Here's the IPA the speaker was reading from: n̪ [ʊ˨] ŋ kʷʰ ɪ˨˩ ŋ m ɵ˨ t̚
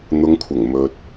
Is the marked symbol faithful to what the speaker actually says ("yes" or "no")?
yes